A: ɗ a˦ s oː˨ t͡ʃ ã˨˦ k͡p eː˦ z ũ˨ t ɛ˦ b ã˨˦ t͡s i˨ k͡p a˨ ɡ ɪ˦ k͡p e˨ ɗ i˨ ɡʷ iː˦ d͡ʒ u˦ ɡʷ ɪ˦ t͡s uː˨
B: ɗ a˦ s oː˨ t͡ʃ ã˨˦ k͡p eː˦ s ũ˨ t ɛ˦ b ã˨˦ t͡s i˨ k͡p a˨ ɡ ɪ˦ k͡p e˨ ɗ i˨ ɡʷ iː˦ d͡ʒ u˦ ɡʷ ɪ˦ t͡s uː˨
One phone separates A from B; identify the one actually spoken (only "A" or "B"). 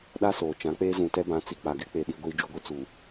A